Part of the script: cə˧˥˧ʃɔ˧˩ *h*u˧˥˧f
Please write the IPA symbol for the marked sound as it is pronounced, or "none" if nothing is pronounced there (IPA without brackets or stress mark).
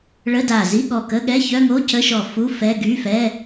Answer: f